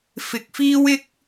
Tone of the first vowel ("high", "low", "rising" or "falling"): low